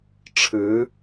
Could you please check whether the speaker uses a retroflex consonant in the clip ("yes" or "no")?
yes